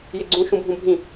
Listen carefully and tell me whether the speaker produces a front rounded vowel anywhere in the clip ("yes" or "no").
no